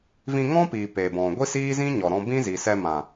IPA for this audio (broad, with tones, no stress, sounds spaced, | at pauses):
v ĩ˧ ŋ ɔ̃˦ p iː˨ p e˨ b ɔ̃˨ ɡʷ i˦ s iː˦ z ĩ˦ ɲ ɔ˨ ɾ ɔ̃˧ b ĩ˦ z i˨ s ɛ˧ m ã˨